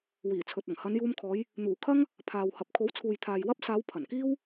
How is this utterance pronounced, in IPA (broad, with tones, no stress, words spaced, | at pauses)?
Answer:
wiː˨˩ t͡sʰɵ˨t̚ɐ˨˩ŋ hɐ˨˧njuː˧mkʰɔː˨˧j | n̪uː˨˩kʰɐ˥ŋ | pʰaː˨whɐ˨p̚ kʰo˨˥wt͡sʰuː˨jt̪ʰaː˨j wɐ˥p̚ saː˨˧w pʰɐ˨˩nkiː˥w